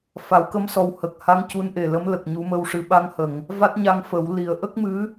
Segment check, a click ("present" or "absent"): absent